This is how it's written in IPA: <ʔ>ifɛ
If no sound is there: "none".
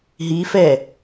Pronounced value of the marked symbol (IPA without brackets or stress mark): ɦ